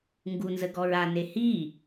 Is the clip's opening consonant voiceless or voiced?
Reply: voiced